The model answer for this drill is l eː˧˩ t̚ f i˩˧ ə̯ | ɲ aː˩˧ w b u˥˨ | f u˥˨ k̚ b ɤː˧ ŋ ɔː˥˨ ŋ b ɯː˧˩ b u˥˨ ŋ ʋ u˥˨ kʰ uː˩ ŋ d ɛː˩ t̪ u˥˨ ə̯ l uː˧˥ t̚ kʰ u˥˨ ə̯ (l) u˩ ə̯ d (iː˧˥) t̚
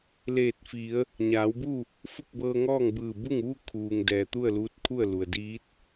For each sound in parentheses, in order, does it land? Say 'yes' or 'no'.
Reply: yes, yes

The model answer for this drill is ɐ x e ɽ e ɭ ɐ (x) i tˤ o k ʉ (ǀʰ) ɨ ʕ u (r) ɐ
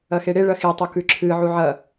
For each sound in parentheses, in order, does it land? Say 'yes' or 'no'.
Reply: yes, no, no

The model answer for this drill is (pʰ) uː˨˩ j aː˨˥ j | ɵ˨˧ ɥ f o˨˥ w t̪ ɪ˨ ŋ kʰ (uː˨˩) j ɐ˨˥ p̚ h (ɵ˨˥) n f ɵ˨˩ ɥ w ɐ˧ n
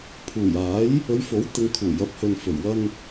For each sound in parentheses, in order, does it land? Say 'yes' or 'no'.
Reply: yes, yes, no

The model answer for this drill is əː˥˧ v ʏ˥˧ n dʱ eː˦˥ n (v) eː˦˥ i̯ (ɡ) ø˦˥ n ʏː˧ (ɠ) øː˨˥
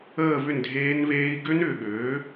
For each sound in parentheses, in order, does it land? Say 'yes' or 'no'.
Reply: yes, yes, yes

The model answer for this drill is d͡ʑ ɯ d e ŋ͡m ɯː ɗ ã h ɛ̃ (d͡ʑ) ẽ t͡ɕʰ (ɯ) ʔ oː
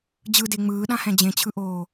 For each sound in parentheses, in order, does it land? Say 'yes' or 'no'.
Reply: yes, yes

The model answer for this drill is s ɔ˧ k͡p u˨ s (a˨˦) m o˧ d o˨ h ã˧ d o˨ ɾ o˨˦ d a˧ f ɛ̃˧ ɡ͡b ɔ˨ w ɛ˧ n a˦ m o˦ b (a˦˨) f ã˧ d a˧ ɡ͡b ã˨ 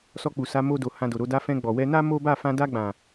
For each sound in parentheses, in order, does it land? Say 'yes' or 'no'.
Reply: yes, yes

